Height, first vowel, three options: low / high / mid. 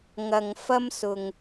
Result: low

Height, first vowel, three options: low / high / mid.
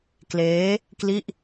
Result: mid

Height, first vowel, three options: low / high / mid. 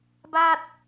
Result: low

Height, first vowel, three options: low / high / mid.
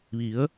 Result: high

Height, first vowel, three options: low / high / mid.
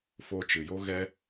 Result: mid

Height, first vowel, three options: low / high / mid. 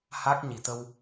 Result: low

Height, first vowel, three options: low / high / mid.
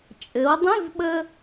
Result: mid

